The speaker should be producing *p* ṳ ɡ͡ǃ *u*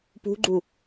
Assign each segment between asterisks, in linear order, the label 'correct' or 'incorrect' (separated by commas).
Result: correct, correct